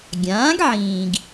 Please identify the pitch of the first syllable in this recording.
rising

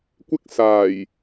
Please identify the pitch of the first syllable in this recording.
high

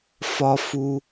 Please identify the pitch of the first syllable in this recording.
high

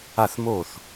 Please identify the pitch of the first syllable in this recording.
falling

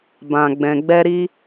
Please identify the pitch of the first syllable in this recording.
low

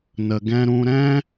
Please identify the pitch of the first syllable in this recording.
low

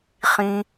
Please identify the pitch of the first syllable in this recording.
low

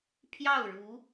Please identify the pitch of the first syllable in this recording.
falling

